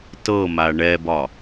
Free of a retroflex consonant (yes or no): no